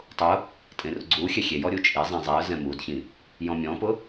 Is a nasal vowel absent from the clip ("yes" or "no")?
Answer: no